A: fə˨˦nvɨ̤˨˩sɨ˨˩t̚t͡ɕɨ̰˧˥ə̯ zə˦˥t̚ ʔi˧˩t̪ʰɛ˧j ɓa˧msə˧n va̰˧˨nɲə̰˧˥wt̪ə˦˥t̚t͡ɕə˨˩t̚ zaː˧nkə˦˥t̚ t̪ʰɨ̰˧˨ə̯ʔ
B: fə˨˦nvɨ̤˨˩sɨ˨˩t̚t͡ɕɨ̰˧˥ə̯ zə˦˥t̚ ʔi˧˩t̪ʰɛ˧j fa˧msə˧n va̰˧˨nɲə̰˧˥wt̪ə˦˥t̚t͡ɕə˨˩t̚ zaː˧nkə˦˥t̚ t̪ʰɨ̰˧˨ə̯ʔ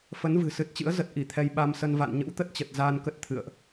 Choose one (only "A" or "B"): A